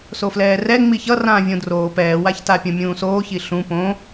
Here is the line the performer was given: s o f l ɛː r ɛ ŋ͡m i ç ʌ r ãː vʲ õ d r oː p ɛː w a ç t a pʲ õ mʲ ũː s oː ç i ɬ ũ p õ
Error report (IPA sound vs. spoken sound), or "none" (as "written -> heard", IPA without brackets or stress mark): none